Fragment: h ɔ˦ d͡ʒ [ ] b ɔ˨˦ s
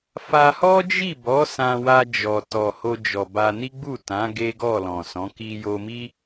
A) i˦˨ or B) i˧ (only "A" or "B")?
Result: A